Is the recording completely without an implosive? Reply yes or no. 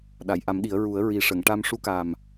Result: no